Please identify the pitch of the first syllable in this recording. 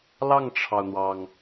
falling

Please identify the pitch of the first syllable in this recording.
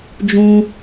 high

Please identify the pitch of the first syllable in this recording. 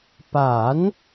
rising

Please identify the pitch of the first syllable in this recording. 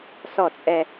falling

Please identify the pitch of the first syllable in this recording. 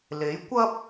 rising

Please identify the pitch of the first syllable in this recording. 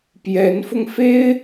rising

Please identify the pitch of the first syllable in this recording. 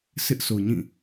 high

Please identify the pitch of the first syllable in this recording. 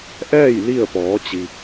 falling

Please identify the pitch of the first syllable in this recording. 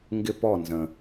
falling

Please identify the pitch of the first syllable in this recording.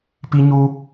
high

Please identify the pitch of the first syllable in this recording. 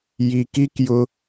low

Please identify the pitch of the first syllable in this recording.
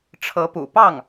rising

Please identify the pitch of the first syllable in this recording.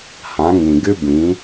rising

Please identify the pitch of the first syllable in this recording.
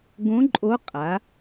rising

